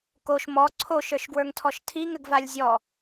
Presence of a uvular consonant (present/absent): absent